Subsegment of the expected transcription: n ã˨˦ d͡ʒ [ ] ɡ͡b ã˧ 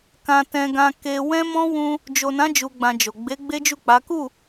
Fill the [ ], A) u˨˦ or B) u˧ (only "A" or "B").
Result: B